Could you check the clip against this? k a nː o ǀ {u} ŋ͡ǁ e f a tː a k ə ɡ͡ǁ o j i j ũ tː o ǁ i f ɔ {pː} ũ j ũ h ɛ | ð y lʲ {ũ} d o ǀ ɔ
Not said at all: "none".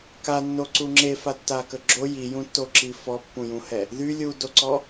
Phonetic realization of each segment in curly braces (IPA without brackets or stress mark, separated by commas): u, pː, u